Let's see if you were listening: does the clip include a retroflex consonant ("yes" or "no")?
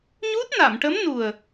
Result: yes